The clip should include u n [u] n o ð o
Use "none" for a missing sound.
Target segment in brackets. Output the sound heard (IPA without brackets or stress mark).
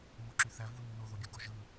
y